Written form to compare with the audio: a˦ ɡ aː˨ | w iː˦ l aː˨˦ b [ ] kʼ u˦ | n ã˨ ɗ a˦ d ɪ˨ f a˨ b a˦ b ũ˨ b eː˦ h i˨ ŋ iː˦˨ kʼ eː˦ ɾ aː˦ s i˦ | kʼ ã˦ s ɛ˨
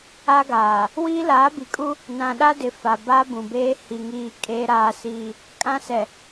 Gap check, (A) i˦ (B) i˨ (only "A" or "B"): B